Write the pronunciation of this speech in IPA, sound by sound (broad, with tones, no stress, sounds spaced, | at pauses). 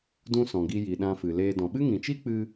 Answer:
d ũ˧ s ɔ̃˨ ɡ i˧ j i˨ ɗ ã˧ f ɨ˨ l eː˧ d ɔ̃˨ ɓ ɨ˦ ŋ ĩ˨ t͡ʃ i˦ k͡p ɨ˧